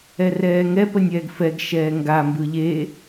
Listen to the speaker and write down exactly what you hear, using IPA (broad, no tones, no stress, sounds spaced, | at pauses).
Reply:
ɛ r ɛː ŋ ɛ p ə nʲ ɛː ɡ f ɛ ɡ ʃ ɛː ŋ ɡ a m b ɯ ʎ e